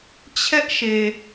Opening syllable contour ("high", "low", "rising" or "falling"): high